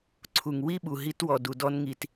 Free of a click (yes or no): no